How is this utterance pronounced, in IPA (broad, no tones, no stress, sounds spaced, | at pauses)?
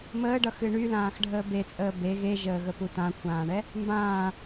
m əː ɖ ʌ x ɨ ɳ y l ãː x ɖʱ əː b e t͡sʼ əː b e ɣ e ʒ əː ɣ ə p u t ã kʷʰ ãː ɳ ɛ | m b ãː